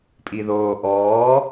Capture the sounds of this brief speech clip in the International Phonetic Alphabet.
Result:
pʼ i ð oː ʔ ɔː

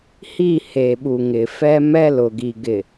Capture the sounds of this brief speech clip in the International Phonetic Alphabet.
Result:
h i˦˨ h e˨ ɓ u˨ ŋ ɪ˨ f ɛ˦ m ɛ˦ l ʊ˨ ɡ i˨ ɡ ɪ˨

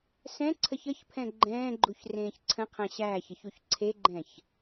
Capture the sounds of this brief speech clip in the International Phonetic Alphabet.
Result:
s ɛ̃ ǀʰ ə ç ə ç pʰ ɛ̃ ɡ͡ǃ ɛ̃ː ɡ͡ǃ u ç r ẽː ç ǀʰ ə̃ qʰ æ̃ ɕ æː ç ə ç u ç ǀʰ e ɡ͡ǃ ɛ̃ ç

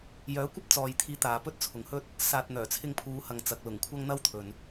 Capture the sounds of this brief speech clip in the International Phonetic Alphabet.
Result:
j œː˨˥ kʷ ɐ˥ p̚ t͡s ɔː˨ j t̪ʰ iː˨˥ t̪ aː˨ p ɵ˥ t̚ t͡sʰ ʊ˨ ŋ h ɵ˥ t̚ | s aː˨ t̚ n̪ œː˨˩ t͡sʰ ɪ˧ ŋ pʰ uː˨˧ h ɐ˨ ŋ t͡s ɐ˨ k̚ l ʊ˨˩ ŋ kʷʰ ɐ˥ ŋ n̪ ɐ˥ w t̪ʰ ɵ˨ n

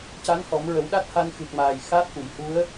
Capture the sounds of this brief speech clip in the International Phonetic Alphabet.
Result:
c a˧˥ n h ɔ˨˩˦ m ɹ ə˨˩˦ w ɗ a˦˥ t̚ h a˧ n x ɨ˨˩ k̚ m aː˨˩ j x a˦˥ t̚ ʔ u˨˩˨ j h u˧˥ ə̯

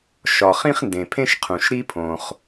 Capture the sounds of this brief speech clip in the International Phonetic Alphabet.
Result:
ʃ ɒ˩ χ ĩ˥ χ n d ẽ˩ pʰ ẽ˥ ʃ qʰ ũ˩ ʃ ɾ i˥ pʰ õ˩ χ

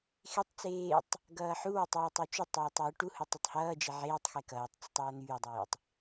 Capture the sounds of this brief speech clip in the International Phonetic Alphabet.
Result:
x e tˤ t͡s eː tˤ | ɡ ʌː ħ u w e tˤ eː tˤ u t͡ʃ ʊ tˤ eː tˤ w ʊ ʈ u h ʊ tˤ ʌ tˤ h ʌː d͡ʒ e ʕ eː tˤ x e k ʌː tˤ t͡s ʊ tˤ ʌː n̪ yː dˤ eː tˤ

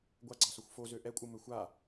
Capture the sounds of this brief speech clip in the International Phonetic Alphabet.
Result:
ɡʷ a ɡ͡ǀ ɑ s o xʷ f o z ø ʔ ɛ kʷʼ ɯ m ø xʷ a

